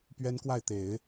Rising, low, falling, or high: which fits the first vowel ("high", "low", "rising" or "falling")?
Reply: high